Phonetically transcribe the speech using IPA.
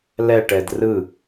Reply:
lɛʈɛd rɯ

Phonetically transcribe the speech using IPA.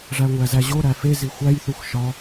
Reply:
ʐæŋʷæzæʑo ɾæfe zixʷæj θuxʃɒ

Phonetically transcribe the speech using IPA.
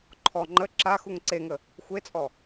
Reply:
ǃʰɔ ŋ͡ǃə ǁaxuŋ ǀeŋə | xʷet͡sʼɔ

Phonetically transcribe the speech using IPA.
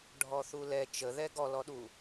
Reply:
ɖʱɔθulɛ t͡ʃəðɛ ɡɔlɔɗu

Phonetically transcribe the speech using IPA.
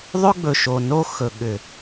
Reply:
ðˤɵ˦ ɡ͡bɵ˨ ʃo˨no˦ xɵ˨ ɠʏ˨

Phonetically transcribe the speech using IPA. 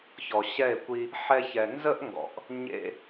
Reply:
çɔ˨ɕɛ˦˨e̯kʷi˧ | ħɛ˧çɛ˨nzə˦ʔŋɡɔ̰˨ʔ | ɲḛ˧

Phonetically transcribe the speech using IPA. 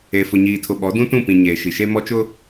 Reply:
e˨ fʊ˨ɲiː˨tʰʊ˨ɓɔ˨˦ dũ˦tũ˦˨ pĩ˨ ɲeː˨ ʃi˨ʃe˦ mɔ˦t͡ʃʊ˦

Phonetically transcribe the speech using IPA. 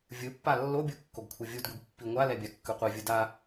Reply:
vʲɯpːa lːobʲu kːoɡkʷʰɯvʲudɡʷeɡ pːiŋʷalɛ bʲakːɯqʷivʲɯ da

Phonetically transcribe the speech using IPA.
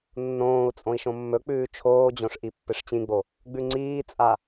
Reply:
nːõːu̯ t͡sʼõi̯ʃõmːɵk͡pʉː t͡ʃʰoːd͡ʑõʂ ʔipːɨʂt͡ɕĩɡ͡bo | ɡ͡bʉŋ͡ǀiːt͡sʼa

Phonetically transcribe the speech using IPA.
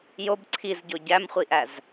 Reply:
job ǀʰizɟo ɟæmχʷiʔæz

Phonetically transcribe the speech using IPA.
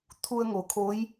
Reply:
t̪ʰu˧ə̯ŋo˩kʰo˧˥j

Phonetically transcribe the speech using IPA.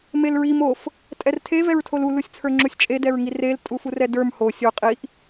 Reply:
melɹim of | tʼɛrtʰe vɛɹtʰolu lusʲt͡sʰə˞ŋ͡ǁusʲt͡ʃʼe dɛɹŋirel tʼufurɛdə˞m ho sʲo qʼiʔ

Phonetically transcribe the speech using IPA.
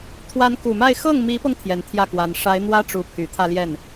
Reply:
t̪ʰwa˧˥n ku˨˩ma˥˧ɪ̯ xɤ˥˩ŋmi˧˥pɤ˧ŋ t̪ʰjɛ˧˥nt̪ʰjä˥˩kwa˧˥n ʂa˧˥ɪ̯n̪wä˥ ʈ͡ʂu˧˥ pʰy˨˩ t̪ʰä˥˧ljɛ˥˩n

